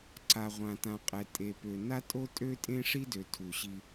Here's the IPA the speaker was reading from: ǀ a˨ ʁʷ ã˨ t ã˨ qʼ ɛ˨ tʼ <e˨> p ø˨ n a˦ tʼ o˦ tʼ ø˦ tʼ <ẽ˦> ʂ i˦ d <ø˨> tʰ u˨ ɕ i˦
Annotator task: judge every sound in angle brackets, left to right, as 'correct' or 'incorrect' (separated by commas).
correct, correct, correct